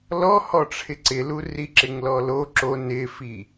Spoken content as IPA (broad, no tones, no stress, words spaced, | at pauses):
lɔhɔ ʈ͡ʂʰɪǀɪlu riǁɪŋlɔlo ǁo nɪfi